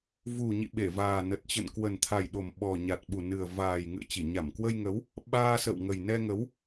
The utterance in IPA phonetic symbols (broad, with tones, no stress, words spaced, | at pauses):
vu˨˩ ɲḭ˧˨ɓe˧˩vaː˨˩ nə˨˩t̚t͡ɕə̰˧˨n kwə˨˩nt̪ʰa˨˩jɗo˨˩m ɓɔ˨˩ɲa˨˩t̚ɓu˨˩ nɨ˨˩ə̯ vaː˨˩jŋɨ̰˧˨ə̯t͡ɕi˧˩ ɲa˧˩mkwə˧jŋə˨˦w | ɓaː˧sə̰˧˨wŋə˨˩jnɛ˧ ŋə˨˦w